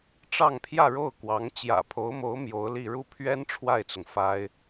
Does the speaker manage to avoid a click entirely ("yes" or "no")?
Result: yes